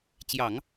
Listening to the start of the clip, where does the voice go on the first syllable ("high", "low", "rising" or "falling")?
low